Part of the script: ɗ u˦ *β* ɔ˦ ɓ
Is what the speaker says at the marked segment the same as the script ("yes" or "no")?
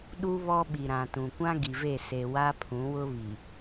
yes